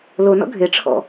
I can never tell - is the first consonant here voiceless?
no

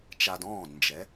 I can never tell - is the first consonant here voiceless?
yes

